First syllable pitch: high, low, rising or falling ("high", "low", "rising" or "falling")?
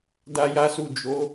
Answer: high